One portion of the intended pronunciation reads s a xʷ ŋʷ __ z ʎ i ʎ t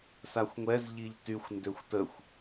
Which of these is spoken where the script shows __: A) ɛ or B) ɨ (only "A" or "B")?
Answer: A